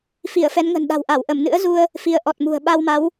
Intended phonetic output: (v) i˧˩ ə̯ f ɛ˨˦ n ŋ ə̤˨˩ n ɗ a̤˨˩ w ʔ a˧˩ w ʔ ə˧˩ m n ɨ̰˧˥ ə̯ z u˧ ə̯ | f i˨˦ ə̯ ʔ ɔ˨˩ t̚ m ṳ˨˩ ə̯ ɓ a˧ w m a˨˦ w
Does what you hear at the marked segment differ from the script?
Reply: yes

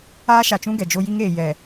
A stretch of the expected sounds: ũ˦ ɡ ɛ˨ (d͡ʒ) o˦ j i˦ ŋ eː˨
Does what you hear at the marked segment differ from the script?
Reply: no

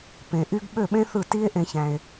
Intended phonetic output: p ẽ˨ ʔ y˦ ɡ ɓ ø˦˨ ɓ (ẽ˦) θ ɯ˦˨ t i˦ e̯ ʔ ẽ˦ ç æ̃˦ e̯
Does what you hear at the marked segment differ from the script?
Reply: no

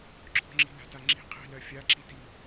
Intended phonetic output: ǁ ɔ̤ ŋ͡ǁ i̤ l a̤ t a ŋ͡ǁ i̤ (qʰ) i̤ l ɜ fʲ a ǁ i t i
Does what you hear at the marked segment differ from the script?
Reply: no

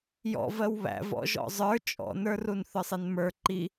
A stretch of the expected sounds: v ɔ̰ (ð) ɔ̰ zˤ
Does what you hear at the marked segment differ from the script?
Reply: yes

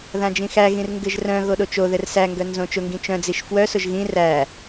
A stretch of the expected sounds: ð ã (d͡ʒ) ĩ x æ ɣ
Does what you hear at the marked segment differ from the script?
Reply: no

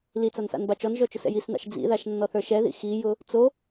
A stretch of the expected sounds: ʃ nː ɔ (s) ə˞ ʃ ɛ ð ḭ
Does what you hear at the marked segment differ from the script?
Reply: yes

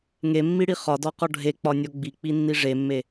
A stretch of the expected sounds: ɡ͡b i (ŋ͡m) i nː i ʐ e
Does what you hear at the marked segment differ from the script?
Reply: yes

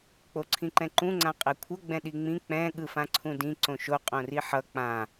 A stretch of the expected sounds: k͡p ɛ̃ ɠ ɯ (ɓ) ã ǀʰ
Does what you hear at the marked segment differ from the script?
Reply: yes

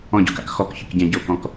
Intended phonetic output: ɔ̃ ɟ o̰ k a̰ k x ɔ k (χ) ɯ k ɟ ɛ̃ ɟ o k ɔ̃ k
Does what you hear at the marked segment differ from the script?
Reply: yes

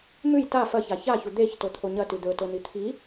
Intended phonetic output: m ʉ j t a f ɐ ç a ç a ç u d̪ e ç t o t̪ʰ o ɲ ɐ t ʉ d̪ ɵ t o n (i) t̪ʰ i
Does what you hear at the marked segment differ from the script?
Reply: no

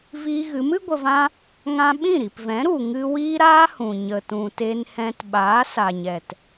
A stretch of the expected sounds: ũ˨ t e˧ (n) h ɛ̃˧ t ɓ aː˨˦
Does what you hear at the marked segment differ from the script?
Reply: no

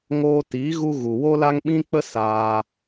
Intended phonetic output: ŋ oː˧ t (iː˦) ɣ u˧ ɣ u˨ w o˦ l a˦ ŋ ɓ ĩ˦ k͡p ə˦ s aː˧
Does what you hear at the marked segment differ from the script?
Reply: yes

